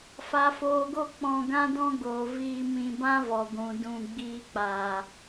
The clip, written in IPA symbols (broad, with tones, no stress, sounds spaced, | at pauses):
f a˨ f oː˨ ɡ o˧ k͡p ɔ̃˧ ɡ ã˦ d ɔ̃˦ ɡ oː˨ v iː˧ m ĩ˧ b ã˦ v ɔ˨ ɡʷ ũ˨ d ũ˧ ɡ͡b iː˦ k͡p a˧